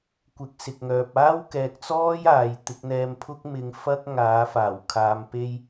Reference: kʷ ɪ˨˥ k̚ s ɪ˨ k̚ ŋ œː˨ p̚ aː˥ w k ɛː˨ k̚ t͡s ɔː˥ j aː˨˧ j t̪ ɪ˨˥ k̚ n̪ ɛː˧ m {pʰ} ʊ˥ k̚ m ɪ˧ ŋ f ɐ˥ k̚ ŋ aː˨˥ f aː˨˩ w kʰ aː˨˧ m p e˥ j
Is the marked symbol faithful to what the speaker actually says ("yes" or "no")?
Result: yes